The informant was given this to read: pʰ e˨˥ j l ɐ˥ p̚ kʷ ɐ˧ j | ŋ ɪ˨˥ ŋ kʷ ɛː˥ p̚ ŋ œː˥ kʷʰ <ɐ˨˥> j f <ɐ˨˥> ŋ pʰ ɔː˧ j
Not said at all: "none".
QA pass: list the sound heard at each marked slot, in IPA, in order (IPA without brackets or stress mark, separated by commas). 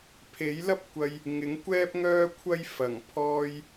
ɐ˥, ɐ˨˩